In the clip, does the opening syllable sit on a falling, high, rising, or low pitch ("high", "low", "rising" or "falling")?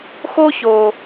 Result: high